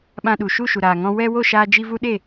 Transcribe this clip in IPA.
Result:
ɓ ã˧ ɗ u˨ ʃ u˦˨ ʃ u˨ ɾ aː˨ ŋ ɔ̃˧ w ɛ˧ w o˦˨ ʃ aː˧ d͡ʒ i˧ v u˦ ɗ e˦˨

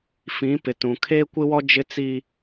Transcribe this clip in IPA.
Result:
f ĩ˨˦ p ɪ˨ t ũ˨ kʰ eː˦ kʷ ɪ˦ w ɔ˦ d͡ʒ ɪ˦ t͡s iː˦

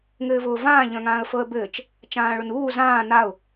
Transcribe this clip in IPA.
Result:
ŋ ɘː v ʊː v ãː ʎ œ̃ ŋ ãː ə̯ f ɤ ə̯ b ɘː t͡ʃ | t͡ʃ ãː ɭ ʊ n uː z ãː n a ʊ̯

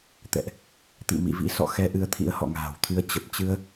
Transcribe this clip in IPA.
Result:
t̪ ɛ̰˧˨ ʔ | t̪ ḭ˧˨ m ḭ˧˨ v ḭ˧˥ s ɔ̰˧˨ x ɛ˧ ʔ ɨ˧ ə̯ t̪ʰ ḭ˧˥ ə̯ h ɔ̰˧˨ ŋ a̤ː˨˩ w t̪ʰ ɨ˧ ə̯ t͡ɕ ə˨˩ p̚ t͡ɕ ɨ˧ ə̯

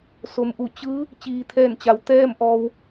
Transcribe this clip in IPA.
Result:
s o˩ m ʔ u˧˩ t͡ɕ ɯː˧˥ | t͡ɕ iː˩ t̪ʰ ɛː˧˩ n t͡ɕ a˩˧ w t̪ ɛː˥˨ m ʔ ɔː˧ w

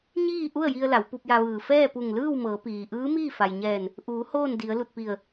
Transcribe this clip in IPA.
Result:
ɲ iː˥˨ ʔ u˥˨ ə̯ j i˧ ə̯ l a˩˧ w p u˧ p̚ j a˧ ʋ ɯː˧˩ f ɛː˥˨ p u˧˩ ŋ l ɯː˥˨ w m ɤː˩˧ p iː˩ ʔ ɯː˧˥ m iː˥˨ f a˩ j ɲ ɛː˧˩ n | ʔ uː˩˧ h oː˥˨ n d i˩˧ ə̯ l u˧˩ t̚ p i˧˩ ə̯

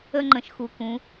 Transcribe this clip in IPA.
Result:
ə˧ ŋ͡ǃ ə̃˩ ʃ x u˩ k ũ˩˧

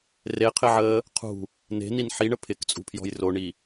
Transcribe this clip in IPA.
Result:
r e qʰ ɪ ʕ əː | qʰ ṳ | n e̤ n i n ħ i ɳ ə pʰ ɪ k t͡sʼ ṳ pʰ j ɔ̤ j r o ɳ i

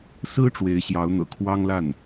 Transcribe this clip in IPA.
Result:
s ɹ̩˥ ʈ͡ʂ w e˧˥ ɪ̯ ɕ j ɑ˧˥ ʊ̯ n̪ ɤ̰˨˩ kʰ w ɑ˥ ŋ l a˥˩ n

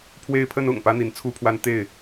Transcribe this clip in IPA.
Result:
pʰ w e˦ ɪ̯ pʰ ə˦ n ʊ̰˨˩ ŋ p ä˦ n̪ i˨˦ n t͡sʰ u˥˨ pʰ w a˦ n t̪ e˥˨ ɪ̯

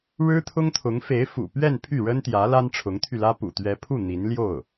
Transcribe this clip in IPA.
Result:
ɻ ɻ̩˥ t̪ʰ ʊ˥ ŋ t̪ʰ ʊ˧˥ ŋ f e˧˥ ɪ̯ f ṵ˨˩ p ɥ ɛ˥˧ n pʰ y˥˩ ɻ ə˥ n t̪ j ä˧˥ l a˥ n ʈ͡ʂʰ ʊ˧˥ ŋ t̪ʰ y˧ l ä˥ p ṵ˨˩ t̪ ɥ ɛ˧˥ pʰ u˥˩ n̪ i˧˥ n l j o˥˩ ʊ̯

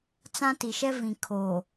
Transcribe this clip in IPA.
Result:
t͡s ã˦ t i˨ ʃ ɛ˦ v ĩ˨ kʰ oː˨

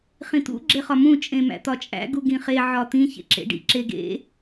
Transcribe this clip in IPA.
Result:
χ ĩ t̪ ṵ ɡ͡ǁ e χ ɒ m ũ t͡ʃʼ ẽ m æ̰ t̪ ɒ t͡ʃʼ æ̰ ɡ u ɡ ĩ χ e ʕ ɒ t̪ ĩ ç ḛ ǁ ḛ ɖ ḭ ǁ e ɡ ḛ

